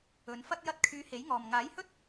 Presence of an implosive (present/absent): absent